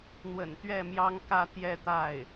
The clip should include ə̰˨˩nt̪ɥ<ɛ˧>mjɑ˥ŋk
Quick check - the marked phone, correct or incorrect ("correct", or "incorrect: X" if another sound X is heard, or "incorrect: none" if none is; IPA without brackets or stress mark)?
incorrect: ɛ˥˩